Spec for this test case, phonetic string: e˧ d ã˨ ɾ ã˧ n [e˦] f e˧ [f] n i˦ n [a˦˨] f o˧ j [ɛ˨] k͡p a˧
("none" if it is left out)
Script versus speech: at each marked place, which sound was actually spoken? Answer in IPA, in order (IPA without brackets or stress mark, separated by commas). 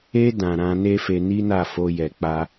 e˦, none, a˦˨, ɛ˨